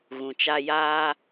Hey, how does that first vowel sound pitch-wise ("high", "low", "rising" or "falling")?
low